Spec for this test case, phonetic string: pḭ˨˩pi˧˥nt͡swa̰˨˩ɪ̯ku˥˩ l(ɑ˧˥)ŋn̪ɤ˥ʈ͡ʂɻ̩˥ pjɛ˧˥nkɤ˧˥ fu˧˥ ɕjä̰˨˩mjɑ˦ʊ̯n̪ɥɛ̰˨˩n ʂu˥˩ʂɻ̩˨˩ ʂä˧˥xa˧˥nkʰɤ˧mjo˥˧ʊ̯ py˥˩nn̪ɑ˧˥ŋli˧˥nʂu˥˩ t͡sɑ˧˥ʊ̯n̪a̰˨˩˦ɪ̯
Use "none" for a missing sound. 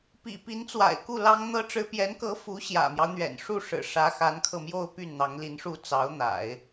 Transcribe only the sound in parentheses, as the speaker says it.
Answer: ɑ˥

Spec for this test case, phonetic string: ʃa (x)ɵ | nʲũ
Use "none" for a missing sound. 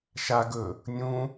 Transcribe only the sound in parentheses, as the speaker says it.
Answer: ɡ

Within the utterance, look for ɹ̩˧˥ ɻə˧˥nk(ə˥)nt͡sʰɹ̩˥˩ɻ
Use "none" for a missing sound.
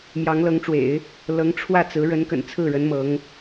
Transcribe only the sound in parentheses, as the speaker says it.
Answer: ə̰˨˩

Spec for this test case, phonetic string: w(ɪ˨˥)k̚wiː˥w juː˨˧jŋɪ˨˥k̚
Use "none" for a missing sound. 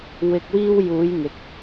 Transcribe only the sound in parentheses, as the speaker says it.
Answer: ɪ˧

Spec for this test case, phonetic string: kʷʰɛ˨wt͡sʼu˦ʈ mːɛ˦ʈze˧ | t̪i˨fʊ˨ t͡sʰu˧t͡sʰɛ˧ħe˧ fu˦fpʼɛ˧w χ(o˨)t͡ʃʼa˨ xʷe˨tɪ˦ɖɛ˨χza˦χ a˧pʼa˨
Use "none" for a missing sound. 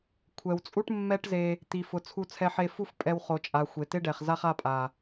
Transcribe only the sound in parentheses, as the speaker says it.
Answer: o˨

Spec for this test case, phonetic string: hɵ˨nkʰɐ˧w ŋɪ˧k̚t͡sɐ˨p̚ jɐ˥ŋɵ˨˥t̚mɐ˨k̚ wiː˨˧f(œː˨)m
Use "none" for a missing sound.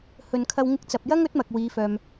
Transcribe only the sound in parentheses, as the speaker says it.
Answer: œː˨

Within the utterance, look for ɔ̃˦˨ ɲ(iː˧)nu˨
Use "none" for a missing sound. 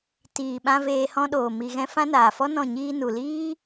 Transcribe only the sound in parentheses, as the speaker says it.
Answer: iː˧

